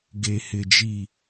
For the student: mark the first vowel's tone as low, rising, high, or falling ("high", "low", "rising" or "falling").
low